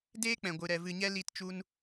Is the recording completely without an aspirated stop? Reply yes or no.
yes